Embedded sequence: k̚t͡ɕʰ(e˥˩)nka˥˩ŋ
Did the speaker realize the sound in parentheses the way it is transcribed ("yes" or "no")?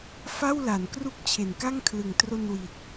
no